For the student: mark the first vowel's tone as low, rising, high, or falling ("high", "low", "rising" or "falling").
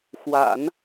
low